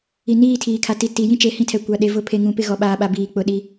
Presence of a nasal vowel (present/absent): present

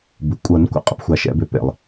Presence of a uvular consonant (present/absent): present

